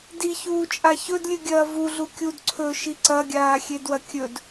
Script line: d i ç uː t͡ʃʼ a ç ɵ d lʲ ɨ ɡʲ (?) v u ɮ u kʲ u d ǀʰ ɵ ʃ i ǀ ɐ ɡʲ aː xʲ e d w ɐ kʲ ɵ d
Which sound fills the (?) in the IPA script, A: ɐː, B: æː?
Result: A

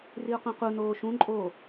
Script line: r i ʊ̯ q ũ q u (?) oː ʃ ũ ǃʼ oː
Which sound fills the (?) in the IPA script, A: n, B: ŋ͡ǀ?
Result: A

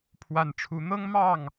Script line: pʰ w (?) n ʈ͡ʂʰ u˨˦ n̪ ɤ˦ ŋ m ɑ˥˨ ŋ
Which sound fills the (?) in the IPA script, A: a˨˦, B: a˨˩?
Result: B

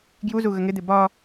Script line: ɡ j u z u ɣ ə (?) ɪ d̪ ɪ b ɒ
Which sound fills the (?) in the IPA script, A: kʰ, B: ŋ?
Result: B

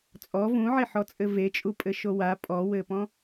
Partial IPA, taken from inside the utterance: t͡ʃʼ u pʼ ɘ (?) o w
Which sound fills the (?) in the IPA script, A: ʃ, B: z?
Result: A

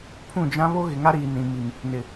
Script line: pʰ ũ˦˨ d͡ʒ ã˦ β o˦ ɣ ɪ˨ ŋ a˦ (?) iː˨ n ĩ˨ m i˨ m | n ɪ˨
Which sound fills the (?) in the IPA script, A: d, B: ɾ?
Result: B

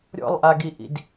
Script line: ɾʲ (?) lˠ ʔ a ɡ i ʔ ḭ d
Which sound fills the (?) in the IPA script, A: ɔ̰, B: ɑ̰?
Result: A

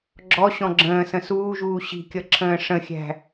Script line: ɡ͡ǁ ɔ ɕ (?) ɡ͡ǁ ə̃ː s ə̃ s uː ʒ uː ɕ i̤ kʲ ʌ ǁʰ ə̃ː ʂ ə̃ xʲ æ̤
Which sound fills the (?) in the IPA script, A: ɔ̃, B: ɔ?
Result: A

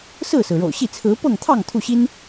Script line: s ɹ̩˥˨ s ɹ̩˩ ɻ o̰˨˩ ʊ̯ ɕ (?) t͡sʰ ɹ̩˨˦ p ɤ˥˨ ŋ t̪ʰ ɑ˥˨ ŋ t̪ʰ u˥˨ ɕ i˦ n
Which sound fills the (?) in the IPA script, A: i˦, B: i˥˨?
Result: B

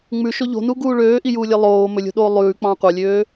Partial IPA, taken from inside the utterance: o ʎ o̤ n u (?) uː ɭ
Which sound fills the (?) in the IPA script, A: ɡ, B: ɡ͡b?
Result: A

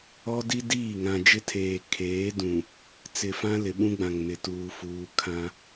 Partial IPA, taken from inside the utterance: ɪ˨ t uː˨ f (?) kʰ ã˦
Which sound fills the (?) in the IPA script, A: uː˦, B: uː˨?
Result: B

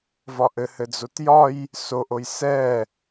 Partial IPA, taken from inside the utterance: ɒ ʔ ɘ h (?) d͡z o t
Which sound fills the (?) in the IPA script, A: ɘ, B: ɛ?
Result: A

